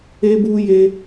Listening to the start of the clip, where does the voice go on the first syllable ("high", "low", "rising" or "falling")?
high